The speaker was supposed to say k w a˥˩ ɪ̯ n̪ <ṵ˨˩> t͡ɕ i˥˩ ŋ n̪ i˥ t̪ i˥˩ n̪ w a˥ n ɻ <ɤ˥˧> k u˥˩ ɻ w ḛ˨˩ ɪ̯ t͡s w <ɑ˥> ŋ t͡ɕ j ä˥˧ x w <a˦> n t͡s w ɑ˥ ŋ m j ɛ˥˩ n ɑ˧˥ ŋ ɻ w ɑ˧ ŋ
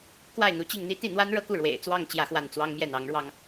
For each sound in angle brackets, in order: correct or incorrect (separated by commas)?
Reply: incorrect, correct, incorrect, incorrect